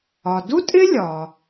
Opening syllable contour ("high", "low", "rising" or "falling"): low